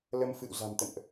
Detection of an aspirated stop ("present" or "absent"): absent